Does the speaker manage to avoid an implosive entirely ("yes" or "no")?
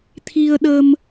no